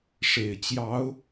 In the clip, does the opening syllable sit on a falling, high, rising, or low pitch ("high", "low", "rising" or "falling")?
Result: low